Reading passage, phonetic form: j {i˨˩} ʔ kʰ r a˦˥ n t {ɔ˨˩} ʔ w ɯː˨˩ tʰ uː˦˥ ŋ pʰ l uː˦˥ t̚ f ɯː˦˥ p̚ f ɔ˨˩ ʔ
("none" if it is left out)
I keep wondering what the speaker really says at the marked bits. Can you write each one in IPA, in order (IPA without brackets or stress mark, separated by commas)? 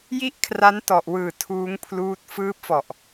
i˥˩, ɔ˨˩